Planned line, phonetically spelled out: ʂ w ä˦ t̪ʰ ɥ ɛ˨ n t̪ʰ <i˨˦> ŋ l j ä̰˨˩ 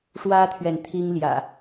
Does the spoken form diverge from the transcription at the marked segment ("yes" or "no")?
yes